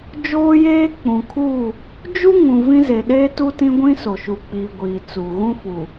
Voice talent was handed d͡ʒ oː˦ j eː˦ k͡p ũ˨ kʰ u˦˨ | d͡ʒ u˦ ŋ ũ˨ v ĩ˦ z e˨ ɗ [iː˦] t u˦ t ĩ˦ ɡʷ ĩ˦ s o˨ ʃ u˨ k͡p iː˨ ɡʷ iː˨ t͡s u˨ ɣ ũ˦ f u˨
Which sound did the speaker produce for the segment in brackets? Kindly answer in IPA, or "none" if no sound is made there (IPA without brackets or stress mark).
eː˦